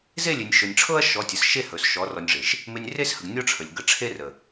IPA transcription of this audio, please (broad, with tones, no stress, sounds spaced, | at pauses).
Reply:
z e˦˨ lʲ e˨ nʲ ʃ ɵ˨ nʲ ʈ͡ʂʰ ɤ˦ ɐ̯ ʃ ɔ˨˦ tʲ ə˨ s ʃ e˦ h ɵ˨ s ʃ ɔ˨˦ r ɔ˧ nʲ ʐ e˨ ʃ | m e˧ nʲ r e˦ s h ə˨ ɡ nʲ ɔ˦ ʈ͡ʂʰ ə˨ lʲ ɡ ə˧ ʈ͡ʂʰ e˦ r ə˨